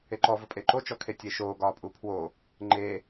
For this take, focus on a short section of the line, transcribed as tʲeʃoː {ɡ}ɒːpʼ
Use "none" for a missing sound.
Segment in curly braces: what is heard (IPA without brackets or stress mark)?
ɡ